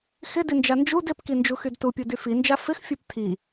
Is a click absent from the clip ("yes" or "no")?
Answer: yes